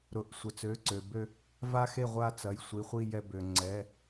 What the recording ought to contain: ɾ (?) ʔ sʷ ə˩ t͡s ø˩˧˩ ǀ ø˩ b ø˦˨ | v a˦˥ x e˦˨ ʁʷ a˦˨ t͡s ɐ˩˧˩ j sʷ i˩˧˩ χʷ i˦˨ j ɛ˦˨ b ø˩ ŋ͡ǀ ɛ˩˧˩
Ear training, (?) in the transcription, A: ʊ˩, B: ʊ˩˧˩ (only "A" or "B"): B